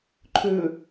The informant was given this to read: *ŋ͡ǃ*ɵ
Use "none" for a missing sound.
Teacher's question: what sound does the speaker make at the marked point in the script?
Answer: ǃʰ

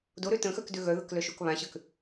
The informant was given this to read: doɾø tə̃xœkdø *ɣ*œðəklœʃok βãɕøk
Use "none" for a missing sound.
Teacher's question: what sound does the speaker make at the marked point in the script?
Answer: ɣ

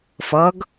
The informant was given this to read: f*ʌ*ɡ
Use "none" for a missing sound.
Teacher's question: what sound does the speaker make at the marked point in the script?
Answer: ʌ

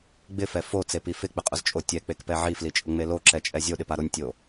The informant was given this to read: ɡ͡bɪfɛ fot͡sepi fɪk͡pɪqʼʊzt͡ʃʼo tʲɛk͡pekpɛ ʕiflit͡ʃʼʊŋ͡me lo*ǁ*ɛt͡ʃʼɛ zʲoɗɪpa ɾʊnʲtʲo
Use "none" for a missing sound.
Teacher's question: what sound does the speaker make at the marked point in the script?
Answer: ǁ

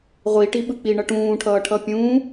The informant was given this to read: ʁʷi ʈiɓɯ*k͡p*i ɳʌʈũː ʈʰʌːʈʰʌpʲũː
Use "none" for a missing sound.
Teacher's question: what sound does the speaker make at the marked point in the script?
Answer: k͡p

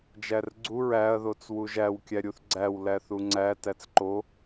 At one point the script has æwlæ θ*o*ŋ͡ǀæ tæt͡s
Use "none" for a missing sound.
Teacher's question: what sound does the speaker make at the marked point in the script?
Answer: u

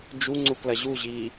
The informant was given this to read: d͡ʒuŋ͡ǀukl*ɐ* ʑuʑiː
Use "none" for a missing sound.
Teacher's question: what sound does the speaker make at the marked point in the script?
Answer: ɐ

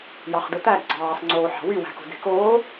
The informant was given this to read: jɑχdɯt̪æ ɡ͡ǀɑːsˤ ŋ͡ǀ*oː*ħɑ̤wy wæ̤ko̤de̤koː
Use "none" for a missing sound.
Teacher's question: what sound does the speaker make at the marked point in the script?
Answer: oː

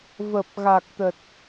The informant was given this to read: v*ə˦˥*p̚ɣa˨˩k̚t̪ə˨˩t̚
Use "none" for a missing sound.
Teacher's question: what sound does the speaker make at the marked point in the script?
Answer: ə˨˩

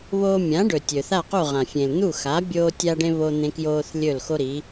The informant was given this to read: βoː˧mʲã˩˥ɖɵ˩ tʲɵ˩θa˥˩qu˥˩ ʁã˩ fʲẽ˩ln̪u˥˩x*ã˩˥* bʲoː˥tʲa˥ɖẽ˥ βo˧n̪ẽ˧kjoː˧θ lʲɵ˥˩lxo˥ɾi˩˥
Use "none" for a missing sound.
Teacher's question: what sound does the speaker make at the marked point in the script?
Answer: a˩˥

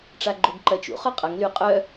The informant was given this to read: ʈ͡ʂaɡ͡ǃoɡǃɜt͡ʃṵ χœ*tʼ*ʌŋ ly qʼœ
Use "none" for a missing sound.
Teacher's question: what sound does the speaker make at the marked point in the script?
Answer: qʼ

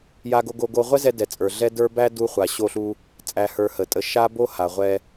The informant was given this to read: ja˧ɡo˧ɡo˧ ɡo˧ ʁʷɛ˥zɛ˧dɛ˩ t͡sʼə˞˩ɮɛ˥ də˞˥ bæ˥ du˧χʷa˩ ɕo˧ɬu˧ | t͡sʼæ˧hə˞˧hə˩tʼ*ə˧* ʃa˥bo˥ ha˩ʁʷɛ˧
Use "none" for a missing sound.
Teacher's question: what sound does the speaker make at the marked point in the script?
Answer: ə˧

